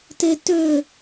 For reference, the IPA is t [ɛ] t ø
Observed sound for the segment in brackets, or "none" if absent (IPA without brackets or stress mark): e